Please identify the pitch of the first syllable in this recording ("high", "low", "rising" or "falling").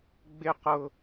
high